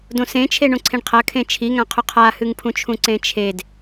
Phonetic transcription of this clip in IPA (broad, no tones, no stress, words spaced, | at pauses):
dõsẽt͡ʃʰe ɳõǀʰẽɳqʰɐ kʰẽt͡ʃʰiŋãqʰʉ qʰahɨŋpʰũt͡ʃʰũ ǀẽt͡ʃʰed